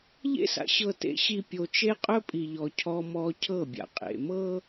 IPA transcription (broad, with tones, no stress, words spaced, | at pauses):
ʎḛ˦sa̰˨ ɕɤ˨tḛ˨ɕi˨ pʲo˨t͡ʃe˦ qʼɵ˦pʼi˨ʎɔ˨ cʰɔ˦mɔ˦ cʰɤ˦˨bʲa̰˨qʼḛ˨mɤ˦